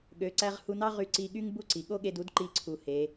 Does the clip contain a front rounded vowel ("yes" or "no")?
yes